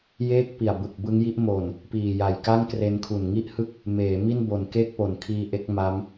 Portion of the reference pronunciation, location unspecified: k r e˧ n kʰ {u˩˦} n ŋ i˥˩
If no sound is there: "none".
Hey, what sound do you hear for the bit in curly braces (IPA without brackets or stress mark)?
u˨˩